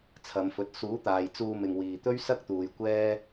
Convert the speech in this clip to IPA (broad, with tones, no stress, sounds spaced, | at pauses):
t͡sʰ ɐ˨˧ m f ɵ˨˥ t̚ s uː˨˥ t̪ aː˨ j t͡s uː˧ m ɪ˨ ŋ w iː˨ t̪ ɵ˥ ɥ s ɐ˥ k̚ t̪ uː˨ j kʷ ɛː˥